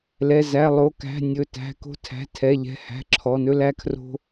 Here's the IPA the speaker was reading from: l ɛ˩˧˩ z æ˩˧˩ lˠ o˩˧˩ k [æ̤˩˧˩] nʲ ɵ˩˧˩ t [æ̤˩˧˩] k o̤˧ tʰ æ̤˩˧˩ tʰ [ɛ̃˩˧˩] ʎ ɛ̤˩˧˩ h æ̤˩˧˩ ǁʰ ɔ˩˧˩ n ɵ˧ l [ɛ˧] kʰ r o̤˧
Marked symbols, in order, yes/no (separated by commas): yes, yes, no, no